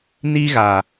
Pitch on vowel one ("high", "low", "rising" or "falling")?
high